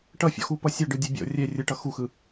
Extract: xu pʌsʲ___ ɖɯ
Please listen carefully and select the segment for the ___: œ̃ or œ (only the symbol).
œ